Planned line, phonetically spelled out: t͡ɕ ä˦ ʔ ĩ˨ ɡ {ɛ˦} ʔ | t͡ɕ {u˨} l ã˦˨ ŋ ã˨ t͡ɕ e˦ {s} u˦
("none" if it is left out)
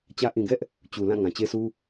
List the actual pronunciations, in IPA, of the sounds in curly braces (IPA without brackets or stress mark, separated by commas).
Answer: ɛ˦, u˨, s